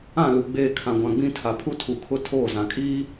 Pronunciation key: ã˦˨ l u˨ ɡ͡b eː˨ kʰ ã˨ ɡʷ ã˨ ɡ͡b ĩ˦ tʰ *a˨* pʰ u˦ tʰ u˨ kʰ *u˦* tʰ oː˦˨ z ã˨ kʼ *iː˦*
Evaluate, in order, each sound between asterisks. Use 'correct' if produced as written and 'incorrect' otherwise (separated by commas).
correct, incorrect, correct